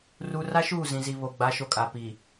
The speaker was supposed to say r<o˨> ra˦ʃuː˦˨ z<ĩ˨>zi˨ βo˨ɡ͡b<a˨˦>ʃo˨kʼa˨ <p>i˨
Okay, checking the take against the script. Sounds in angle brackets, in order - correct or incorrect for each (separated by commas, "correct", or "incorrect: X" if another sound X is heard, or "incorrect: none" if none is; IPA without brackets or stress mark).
incorrect: u˨, correct, correct, correct